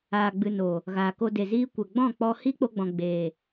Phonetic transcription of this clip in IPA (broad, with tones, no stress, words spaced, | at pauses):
a˨ɡ͡bɨ˨ no˨ | ɣaː˨ko˧de˨ziː˦ kʷə˨ ɡ͡bɔ̃˦˨k͡pɔ˧ hi˦k͡po˧ɡ͡bɔ̃˨ ɡ͡beː˨